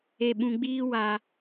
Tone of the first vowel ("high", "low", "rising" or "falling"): low